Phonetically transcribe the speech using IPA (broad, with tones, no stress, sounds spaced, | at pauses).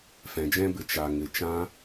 f ɛ̃˨ d͡ʒ ɛ̃˧ b ɨ˨ t͡ʃ a˨ ŋ ɨ˨ t͡ʃ ã˦